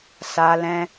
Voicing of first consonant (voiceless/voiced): voiceless